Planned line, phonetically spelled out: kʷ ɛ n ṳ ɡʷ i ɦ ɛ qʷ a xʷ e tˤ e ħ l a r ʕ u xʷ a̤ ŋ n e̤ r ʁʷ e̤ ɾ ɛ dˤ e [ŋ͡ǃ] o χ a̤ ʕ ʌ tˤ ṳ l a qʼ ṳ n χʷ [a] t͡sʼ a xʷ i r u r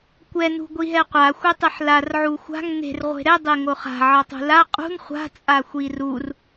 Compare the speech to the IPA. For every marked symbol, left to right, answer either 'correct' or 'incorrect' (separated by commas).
incorrect, incorrect